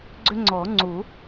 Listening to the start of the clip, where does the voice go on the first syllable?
high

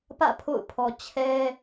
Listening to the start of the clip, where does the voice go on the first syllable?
falling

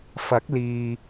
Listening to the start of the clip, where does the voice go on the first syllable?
rising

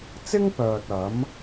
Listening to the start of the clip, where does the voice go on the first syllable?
high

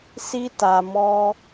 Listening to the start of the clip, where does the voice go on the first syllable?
high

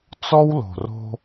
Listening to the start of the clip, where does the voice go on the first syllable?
high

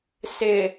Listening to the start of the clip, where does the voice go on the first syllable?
low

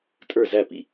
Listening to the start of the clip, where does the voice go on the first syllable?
falling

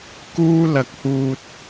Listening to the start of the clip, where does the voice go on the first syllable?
high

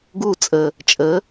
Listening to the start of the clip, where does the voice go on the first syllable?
falling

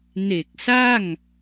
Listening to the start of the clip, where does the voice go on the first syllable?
low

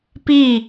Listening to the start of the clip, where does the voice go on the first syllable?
falling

